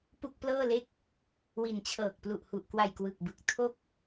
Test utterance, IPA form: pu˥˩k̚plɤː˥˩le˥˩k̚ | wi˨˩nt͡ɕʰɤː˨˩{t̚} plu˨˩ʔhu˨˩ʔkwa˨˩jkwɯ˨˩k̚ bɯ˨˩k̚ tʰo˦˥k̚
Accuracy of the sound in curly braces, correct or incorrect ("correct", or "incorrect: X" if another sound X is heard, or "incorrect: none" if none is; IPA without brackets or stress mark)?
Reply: incorrect: k̚